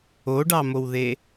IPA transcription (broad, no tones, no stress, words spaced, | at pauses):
oɖɑmowðe